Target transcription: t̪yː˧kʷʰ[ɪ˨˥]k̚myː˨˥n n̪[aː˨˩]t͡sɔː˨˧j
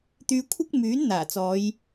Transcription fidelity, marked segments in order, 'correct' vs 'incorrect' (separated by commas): incorrect, correct